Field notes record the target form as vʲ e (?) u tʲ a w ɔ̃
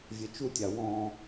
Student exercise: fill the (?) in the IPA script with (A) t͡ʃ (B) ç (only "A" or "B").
A